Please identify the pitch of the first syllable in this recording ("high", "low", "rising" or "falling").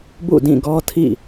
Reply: falling